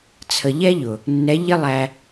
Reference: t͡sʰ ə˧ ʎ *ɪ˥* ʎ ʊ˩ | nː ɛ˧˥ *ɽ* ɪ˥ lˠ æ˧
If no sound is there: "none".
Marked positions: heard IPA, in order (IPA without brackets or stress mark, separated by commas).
ɛ˥, ʎ